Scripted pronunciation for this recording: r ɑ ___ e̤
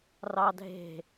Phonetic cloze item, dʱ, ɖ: dʱ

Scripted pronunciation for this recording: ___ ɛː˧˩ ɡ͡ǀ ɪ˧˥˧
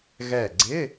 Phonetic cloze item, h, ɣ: ɣ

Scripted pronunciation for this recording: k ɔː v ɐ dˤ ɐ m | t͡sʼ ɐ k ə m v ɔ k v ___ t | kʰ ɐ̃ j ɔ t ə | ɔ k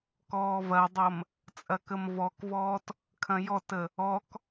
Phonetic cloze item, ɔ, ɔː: ɔː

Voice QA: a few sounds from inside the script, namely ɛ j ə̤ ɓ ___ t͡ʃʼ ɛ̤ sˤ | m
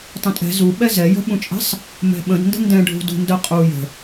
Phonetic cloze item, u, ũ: ũ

